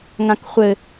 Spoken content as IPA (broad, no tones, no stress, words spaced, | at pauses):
ŋãkχʷɘ